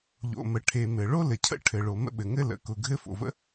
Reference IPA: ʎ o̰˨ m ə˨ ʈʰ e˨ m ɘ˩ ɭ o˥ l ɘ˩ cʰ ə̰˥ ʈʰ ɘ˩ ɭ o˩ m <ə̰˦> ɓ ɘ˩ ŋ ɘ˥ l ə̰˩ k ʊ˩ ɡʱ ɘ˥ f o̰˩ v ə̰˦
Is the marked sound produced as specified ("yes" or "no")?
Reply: yes